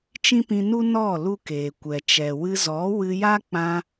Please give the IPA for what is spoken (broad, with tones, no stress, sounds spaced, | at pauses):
t͡ʃ ĩ˦ p ĩ˧ n u˦ n ɔ˦˨ l u˦ k eː˨ kʷ ɛ˨ t͡ʃ ɛ˨ w ɨ˧ z ɔ˨˦ w ɨ˧ j a˦ k͡p ã˧